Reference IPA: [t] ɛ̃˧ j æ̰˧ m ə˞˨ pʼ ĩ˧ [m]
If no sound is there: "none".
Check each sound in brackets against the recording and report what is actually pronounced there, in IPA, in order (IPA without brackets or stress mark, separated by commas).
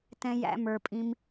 t, m